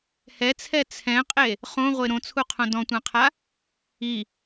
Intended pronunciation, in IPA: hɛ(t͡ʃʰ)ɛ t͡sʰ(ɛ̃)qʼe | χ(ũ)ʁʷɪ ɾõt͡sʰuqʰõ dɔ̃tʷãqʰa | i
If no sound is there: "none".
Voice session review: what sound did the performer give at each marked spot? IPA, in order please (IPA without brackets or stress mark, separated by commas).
t͡sʰ, ɛ̃, õ